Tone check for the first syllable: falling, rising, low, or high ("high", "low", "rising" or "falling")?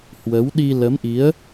rising